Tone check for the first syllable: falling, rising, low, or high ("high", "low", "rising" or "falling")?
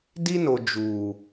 high